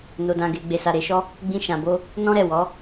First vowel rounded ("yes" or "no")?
yes